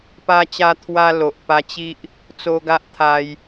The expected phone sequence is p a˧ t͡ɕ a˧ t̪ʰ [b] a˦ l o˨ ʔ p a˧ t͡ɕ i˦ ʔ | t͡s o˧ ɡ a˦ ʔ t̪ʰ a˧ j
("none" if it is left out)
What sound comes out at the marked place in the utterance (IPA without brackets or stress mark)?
w